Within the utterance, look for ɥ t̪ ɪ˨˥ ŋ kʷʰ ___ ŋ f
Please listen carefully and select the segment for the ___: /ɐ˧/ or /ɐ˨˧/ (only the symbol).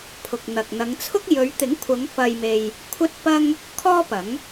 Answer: ɐ˨˧